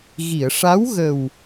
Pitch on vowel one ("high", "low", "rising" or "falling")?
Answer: low